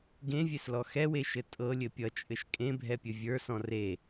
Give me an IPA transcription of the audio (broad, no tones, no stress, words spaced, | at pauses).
ɡẽvʲeslɔ xɛweʃɘ tʼɤlʲɘ pʲʌt͡ʃʼɘʃ kʼẽbʱɛpʲɘ vʲə˞sɔ̃ re